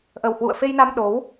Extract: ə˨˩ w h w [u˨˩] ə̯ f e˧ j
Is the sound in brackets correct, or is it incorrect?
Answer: incorrect